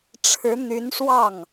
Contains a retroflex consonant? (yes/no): yes